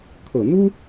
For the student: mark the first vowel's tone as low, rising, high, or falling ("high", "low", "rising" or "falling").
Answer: low